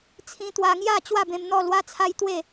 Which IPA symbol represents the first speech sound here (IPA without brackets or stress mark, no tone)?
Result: t͡sʰ